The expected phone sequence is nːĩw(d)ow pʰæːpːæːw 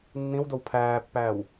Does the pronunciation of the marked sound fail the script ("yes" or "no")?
no